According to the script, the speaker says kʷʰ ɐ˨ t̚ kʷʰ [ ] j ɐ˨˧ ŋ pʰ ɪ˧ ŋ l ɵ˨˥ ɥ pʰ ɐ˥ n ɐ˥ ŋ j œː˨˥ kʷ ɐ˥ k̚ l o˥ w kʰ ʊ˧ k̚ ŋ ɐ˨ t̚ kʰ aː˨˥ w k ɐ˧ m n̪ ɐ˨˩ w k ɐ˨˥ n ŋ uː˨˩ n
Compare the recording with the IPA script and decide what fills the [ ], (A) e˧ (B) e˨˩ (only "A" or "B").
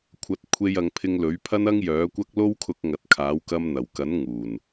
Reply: A